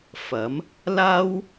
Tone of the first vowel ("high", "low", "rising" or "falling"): rising